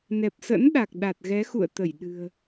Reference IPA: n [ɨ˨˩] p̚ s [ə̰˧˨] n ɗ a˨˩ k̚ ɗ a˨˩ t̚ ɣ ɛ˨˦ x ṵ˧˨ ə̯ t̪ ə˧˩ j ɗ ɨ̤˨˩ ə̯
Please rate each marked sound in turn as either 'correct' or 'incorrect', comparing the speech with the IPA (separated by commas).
incorrect, incorrect